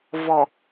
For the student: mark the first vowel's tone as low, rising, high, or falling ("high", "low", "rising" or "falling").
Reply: low